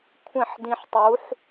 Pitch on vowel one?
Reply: falling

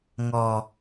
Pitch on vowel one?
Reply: low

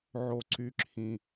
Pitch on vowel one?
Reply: low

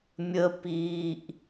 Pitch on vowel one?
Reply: high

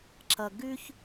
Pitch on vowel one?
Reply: low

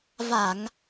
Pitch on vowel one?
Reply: low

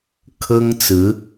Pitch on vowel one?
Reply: high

